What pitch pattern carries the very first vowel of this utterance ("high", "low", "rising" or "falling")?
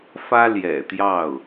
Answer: high